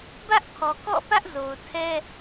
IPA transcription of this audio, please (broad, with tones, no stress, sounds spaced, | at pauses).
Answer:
b ä˦ ʔ pʰ ɔ˨ k ɔ̰˦˨ p ä˦ ʔ z o˨ ʊ̯ tʰ ɛ˦